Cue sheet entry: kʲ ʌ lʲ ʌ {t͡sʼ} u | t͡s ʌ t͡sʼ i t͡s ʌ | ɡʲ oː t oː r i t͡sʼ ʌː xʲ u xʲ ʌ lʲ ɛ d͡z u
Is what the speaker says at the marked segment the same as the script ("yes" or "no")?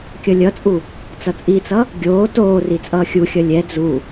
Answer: yes